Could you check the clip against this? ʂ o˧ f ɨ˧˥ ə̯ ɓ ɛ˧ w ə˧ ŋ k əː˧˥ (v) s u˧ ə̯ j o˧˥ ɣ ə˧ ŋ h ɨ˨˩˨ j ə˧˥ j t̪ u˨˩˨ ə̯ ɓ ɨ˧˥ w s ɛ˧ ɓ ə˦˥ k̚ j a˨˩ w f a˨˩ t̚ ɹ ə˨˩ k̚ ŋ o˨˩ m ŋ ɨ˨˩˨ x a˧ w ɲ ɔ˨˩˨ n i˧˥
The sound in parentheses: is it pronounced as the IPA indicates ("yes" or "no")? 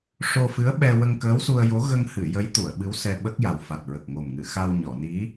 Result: no